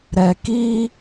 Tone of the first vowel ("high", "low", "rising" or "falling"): low